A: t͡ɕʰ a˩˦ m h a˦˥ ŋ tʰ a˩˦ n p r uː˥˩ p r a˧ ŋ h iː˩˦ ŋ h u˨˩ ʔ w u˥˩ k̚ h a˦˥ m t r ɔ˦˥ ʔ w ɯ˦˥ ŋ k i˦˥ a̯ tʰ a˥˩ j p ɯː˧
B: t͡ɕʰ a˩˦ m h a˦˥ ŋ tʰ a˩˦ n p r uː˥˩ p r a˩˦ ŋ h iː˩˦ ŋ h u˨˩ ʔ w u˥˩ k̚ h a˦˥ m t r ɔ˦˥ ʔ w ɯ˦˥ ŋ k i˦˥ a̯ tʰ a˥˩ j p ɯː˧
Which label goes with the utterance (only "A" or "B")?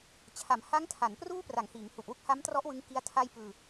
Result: B